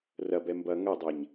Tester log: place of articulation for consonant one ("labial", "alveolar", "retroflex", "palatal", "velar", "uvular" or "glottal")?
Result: alveolar